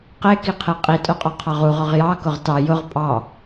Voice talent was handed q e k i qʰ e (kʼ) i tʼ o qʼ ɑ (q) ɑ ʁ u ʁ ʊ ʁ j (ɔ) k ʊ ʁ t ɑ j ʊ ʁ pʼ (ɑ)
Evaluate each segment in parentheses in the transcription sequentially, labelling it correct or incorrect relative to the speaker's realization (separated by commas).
incorrect, incorrect, incorrect, correct